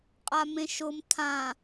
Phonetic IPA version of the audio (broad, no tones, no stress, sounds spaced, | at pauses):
qʼ a m ẽ ʃ ʊ m tʰ ã